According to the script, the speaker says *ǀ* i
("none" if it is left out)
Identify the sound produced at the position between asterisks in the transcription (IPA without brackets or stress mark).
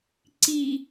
ǀ